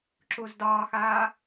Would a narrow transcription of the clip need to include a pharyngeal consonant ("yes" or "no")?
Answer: no